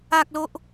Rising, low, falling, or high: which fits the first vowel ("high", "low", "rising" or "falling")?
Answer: high